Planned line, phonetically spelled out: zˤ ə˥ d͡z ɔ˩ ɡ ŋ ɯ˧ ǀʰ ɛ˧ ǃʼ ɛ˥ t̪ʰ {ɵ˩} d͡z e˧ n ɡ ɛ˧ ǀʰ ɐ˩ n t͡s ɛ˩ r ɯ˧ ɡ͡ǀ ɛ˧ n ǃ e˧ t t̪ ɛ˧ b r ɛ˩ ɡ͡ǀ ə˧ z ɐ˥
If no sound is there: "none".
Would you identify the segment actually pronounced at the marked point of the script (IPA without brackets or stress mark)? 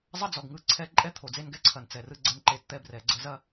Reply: o˩